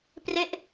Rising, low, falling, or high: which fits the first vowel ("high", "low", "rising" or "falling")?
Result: falling